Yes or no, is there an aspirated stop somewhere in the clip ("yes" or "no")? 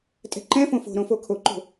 yes